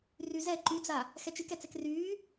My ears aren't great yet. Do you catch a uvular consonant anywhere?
no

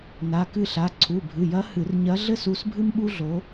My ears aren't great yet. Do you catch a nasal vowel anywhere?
no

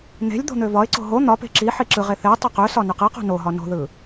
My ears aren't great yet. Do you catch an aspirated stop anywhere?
no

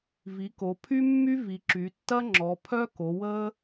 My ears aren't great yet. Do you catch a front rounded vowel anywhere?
yes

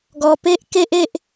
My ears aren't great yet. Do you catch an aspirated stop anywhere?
no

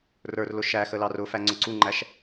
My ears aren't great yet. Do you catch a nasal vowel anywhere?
no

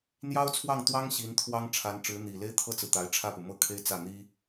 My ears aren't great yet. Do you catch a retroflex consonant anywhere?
yes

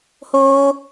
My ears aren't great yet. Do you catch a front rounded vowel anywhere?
no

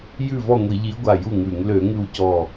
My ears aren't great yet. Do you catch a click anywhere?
no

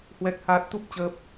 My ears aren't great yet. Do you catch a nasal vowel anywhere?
no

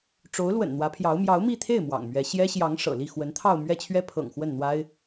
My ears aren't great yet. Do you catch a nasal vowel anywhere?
no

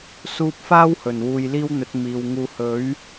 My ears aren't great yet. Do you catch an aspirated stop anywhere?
no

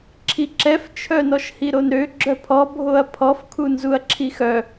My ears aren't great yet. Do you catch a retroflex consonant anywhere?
no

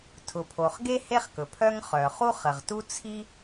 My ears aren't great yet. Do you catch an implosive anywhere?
no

